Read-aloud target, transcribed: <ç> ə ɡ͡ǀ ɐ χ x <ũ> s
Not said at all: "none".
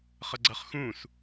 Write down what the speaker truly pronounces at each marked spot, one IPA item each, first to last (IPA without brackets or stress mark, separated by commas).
χ, ũ